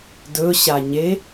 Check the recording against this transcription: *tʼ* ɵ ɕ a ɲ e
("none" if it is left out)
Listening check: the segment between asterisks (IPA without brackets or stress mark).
d